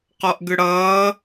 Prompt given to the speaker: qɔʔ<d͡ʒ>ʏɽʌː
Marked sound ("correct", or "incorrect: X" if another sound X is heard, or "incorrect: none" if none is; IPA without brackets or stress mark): incorrect: ɡ